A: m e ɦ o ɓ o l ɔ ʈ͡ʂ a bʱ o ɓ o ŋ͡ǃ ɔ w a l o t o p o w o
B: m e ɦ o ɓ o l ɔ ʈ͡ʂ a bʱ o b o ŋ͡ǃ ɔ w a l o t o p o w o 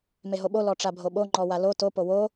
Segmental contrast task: A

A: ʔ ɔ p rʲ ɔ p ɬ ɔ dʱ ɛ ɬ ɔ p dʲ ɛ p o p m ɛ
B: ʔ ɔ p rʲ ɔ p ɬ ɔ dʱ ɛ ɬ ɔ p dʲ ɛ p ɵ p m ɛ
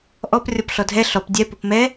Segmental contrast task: A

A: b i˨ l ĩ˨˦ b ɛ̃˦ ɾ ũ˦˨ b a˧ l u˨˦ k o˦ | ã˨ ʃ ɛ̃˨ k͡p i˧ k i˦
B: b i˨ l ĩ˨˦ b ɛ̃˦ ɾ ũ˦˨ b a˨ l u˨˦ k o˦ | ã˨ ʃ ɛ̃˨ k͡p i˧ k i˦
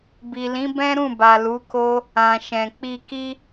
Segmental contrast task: B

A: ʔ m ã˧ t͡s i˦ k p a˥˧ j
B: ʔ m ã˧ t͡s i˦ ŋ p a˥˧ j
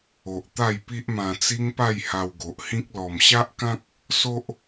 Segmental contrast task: B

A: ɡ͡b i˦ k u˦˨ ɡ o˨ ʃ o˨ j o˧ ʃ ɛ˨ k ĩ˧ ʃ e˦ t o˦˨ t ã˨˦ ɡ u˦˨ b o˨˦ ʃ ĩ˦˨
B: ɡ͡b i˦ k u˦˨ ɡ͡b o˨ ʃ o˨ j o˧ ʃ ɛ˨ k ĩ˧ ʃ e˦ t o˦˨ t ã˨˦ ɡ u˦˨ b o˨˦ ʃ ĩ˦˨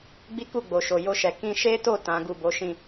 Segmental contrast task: B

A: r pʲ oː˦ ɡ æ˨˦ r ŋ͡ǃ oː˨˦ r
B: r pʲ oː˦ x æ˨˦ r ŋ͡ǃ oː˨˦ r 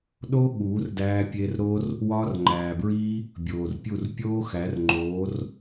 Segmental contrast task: B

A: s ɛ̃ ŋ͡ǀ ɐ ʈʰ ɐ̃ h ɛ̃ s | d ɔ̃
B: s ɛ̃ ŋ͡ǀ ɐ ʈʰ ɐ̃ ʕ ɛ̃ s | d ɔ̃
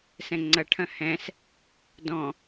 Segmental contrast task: A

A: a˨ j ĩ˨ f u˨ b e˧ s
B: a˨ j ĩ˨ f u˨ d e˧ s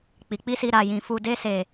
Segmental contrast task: B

